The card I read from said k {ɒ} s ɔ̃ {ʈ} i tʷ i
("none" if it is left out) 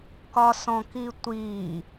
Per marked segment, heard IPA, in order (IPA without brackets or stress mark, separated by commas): ɒ, k